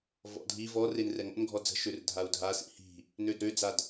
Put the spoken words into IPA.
v ɔ̰ dʱ i v ɔ r e n r ɛ ŋ ɔ̰ n ɡʱ ɔ d͡z ə̤ ʃ ø r dʱ a u̯ dʱ a s ḭ h i̤ | n ø d ɾ ø d͡z a d

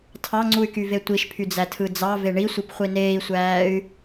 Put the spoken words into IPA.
tʰ ɑ ŋ͡ǀ u y̯ k y v e tʷ i ʃ pʰ y d͡z æ tʰ ɯ d͡z ɑ v e ɳ i sʷ i p χʷ i n eː i̯ sʷ æː y̯

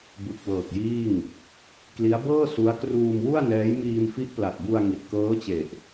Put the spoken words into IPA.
b ɯ˨˩ k̚ w ɤː˨˩ k̚ j iː˥˩ ŋ | k l i˦˥ a̯ b ɤː˥˩ s u˦˥ a̯ k r uː˧ m w u˥˩ a̯ n ɛː˦˥ j m iː˧ m f i˦˥ ʔ p l a˨˩ t̚ b u˧ a̯ ŋ i˨˩ t̚ k ɤː˦˥ t͡ɕ e˨˩ ʔ

